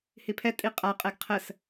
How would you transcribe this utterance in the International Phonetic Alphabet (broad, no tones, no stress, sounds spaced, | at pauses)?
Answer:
h i pʰ ɛ tʼ i qʼ a qʼ ɛ ɡ qʰ ə s